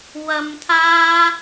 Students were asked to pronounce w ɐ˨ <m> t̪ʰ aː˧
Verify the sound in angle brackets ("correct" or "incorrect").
correct